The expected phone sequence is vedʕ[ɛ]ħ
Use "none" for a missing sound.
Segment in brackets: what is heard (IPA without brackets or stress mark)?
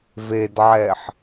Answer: ɛ